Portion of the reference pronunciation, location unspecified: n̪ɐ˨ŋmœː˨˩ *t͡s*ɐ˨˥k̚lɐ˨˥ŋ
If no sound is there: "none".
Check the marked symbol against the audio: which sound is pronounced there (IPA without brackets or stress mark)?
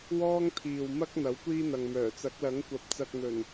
t͡s